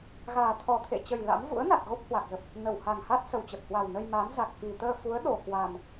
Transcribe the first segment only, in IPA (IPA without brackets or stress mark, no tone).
ɣ